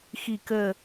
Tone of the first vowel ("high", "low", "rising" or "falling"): low